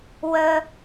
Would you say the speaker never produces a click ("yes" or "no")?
yes